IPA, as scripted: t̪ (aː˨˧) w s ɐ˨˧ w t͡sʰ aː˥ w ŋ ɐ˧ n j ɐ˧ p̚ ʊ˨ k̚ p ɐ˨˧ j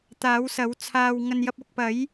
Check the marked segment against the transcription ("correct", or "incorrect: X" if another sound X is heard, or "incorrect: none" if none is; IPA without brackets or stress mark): correct